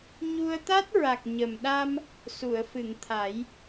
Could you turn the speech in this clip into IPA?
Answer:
ɲu˧ə̯t̪a˦˥t̚ ɹa˨˩k̚ ɲə˨˩m ɗa˧m | su˨˩˨ə̯fɨ˨˩˨ŋ t̪ʰa˨˩˦j

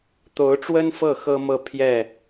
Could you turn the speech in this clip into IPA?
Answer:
t̪o˧˥ʊ̯ʈ͡ʂwə˥nfɤ˥˩ xɤ˥mɤ˥˧ pʰjɛ˥˩

